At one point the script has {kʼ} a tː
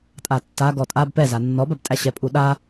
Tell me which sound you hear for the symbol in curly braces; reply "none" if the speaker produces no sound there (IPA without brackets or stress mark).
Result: tʼ